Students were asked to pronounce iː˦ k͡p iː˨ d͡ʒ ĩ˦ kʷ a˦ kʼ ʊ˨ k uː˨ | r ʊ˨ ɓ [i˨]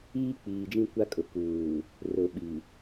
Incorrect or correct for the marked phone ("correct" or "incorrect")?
correct